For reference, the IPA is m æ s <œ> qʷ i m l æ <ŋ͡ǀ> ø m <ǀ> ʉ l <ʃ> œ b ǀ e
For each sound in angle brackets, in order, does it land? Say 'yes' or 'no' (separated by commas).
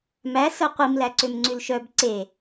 yes, no, no, yes